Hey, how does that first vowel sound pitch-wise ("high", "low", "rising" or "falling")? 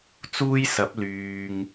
high